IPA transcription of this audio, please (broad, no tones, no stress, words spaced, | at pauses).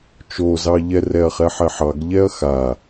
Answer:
t͡ʃozɑʎɛrɛɐ̯ χɛħɛħɑɡ ʎɛɐ̯xa